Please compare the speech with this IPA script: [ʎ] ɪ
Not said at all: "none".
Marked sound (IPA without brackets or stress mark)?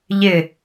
ʎ